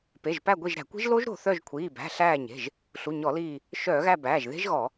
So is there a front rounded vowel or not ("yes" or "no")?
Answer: yes